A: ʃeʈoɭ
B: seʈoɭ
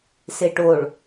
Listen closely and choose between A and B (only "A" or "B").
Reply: B